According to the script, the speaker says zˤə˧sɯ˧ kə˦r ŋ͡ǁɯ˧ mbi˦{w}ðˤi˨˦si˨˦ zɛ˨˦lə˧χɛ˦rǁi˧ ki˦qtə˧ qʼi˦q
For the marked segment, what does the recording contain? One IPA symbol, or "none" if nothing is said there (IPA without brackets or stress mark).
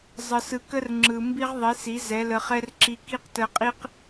ʁ